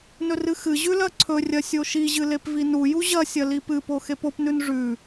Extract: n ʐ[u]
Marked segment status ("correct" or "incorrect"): incorrect